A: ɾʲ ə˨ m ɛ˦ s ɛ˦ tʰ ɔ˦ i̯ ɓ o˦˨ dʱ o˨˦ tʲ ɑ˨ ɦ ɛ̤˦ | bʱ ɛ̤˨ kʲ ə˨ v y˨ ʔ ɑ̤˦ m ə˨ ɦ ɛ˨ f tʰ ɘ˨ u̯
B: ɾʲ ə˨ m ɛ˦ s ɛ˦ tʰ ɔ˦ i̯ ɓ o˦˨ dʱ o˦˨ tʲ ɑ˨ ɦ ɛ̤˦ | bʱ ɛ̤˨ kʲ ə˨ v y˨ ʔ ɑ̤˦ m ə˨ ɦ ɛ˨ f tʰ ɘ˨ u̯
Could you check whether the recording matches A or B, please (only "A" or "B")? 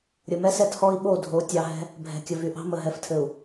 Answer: A